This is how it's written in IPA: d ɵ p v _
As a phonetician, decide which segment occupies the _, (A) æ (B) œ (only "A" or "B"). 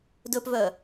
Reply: B